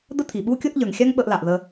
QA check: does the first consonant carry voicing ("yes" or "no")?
yes